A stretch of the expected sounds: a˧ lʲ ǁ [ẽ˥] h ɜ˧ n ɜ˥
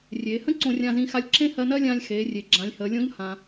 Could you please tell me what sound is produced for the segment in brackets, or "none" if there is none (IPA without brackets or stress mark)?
ẽ˥